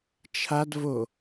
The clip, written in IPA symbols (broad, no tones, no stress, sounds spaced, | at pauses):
t͡ʃʰ a d v o